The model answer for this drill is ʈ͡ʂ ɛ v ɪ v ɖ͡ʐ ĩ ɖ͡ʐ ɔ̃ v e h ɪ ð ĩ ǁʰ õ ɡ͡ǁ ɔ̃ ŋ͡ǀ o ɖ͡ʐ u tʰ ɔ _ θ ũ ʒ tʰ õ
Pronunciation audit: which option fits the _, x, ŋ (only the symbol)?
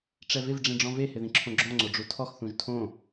x